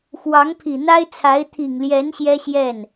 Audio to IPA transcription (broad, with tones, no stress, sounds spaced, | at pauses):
x w ɑ˧˥ ŋ pʰ i˨˩ n̪ a˥ ɪ̯ t͡sʰ a˧˥ ɪ̯ t̪ʰ i˨˩ ŋ l j ɛ˧˥ n ɕ j ɛ˥ ɕ j ɛ˥˩ n